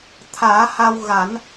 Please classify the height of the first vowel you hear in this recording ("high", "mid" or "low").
low